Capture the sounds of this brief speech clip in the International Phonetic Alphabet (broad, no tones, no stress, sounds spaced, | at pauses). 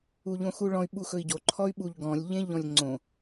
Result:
u ʎ õ x u ɭ ɔ̃ y̯ ɓ u x ɵ i̯ ɟ o ǃʰ ɔ y̯ ɓ u ʎ ɡ ɔ̃ lʲ ʎ ẽ ʎ ɔ̃ lʲ ŋ͡ǀ õ